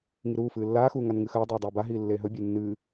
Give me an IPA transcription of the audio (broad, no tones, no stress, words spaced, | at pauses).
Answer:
ŋiɾuːfɨː lːaːxuː ŋanŋɨxɐːdˤiː dˤeːbaɦiː lːeːɦɵbʲɨː nːɨː